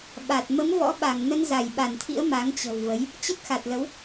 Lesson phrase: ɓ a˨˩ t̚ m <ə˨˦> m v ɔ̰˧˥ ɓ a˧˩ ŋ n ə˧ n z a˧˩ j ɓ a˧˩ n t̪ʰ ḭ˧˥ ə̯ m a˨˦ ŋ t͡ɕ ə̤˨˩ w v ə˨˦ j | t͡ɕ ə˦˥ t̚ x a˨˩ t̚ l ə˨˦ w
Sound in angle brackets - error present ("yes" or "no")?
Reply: no